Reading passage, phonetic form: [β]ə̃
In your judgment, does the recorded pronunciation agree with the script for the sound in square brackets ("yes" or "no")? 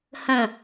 no